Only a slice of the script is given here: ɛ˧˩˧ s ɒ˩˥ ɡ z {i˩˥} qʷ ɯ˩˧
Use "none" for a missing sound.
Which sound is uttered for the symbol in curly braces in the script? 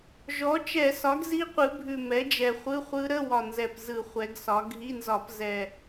i˦˥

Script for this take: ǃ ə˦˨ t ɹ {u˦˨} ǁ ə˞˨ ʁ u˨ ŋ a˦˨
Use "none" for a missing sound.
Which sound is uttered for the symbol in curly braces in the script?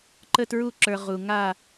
u˦˨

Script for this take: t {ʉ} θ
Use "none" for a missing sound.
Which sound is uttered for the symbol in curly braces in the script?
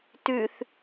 ʉ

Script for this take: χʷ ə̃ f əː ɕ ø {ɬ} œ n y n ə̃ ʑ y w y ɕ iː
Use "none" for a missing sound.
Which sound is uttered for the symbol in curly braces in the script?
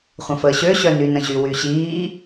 ɕ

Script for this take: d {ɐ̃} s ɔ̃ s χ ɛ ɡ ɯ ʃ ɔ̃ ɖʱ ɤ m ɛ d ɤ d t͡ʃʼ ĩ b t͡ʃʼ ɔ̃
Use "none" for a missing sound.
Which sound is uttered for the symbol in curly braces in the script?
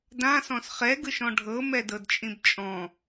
ã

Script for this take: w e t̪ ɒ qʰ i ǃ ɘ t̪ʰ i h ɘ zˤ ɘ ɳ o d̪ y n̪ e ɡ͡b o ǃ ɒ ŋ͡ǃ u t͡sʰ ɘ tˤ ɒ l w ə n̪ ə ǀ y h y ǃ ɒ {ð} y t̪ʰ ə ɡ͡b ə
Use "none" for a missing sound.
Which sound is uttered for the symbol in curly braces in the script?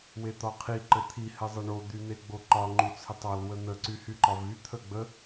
v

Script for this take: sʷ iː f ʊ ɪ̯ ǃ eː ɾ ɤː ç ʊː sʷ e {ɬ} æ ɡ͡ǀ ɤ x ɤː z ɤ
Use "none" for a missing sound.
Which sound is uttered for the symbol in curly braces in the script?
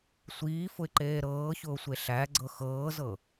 ɬ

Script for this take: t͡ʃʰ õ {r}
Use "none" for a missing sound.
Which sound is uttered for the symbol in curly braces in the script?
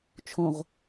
ʁ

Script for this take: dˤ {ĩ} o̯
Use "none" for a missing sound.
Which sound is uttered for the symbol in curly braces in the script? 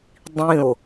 ĩ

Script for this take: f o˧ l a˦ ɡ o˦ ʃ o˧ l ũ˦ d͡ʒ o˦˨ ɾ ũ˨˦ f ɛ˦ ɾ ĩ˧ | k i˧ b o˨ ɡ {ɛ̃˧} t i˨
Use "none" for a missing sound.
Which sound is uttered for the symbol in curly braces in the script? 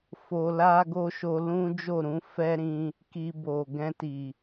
ɛ̃˧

